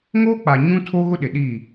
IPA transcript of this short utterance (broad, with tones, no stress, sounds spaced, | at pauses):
ŋ oː˦ k͡p a˨ ɲ ũ˦ tʰ o˦ ɣ ʊ˦ ɗ ɪ˨ ɗ i˦˨